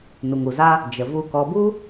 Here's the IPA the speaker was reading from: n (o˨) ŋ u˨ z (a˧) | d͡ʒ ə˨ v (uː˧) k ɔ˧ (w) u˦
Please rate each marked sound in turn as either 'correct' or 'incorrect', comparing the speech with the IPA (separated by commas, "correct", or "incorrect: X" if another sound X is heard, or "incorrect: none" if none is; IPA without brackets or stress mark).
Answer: incorrect: u˨, incorrect: a˦, incorrect: u˧, incorrect: b